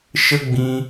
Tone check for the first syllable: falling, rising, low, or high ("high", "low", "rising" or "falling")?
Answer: high